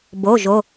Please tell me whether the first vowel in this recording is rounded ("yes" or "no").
yes